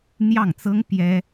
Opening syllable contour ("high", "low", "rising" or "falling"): falling